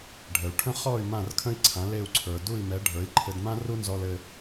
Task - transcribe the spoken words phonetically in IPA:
ɖʱ ə˩ u̯ ʈʰ ə̃˥ χ ɔ˥˩ y̯ m ã˥˩ r kʰ ə̃˥ i̯ ǀʰ ã˩˥ l e˥˩ u̯ ǀʰ ə˞˩ d u˥˩ i̯ m ɛ˩˥ ɖʱ ə˞˩˥ i̯ ǃʰ ɘ˧ d m ã˥ r u˥ n z ɔ˧ l ɘ˧

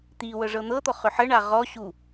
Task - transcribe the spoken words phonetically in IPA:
t̪ i w ɤ ʐ ɤ n̪ ɤ t̪ ɔ χ ʏ ħ ə ɳ a ʁ ɔ ɕ u

